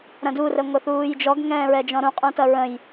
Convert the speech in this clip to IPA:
ɾ ɐ̃ d u r ə ŋʷ ə θ uː j d͡ʒ ɔ ɡ ŋ ɛ̃ː ɹ ɛ d͡ʒ ɔ̃ ɾ ũ qʼ ũ t ɐ ɹ ə̃ j

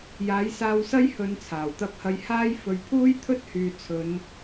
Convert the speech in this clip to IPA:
j aː˨˥ j s aː˧ w s ɐ˥ j h ɵ˨˧ n t͡sʰ aː˨˩ w t̪ ɐ˧ p̚ h ɐ˧ j h aː˧ j f ɵ˨ ɥ pʰ uː˥ j t̪ʰ ɵ˥ t̚ h yː˨ t͡sʰ ɵ˨˧ n

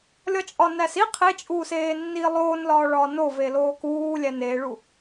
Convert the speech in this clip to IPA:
lʲ ɒ t͡ʃʼ ɒ n æ s i qʰ e t͡ʃʼ uː s eː nː iː lˠ oː n l ɒː ɭ ɒː n o v e l oː k uː lʲ æ n eː ɭ u

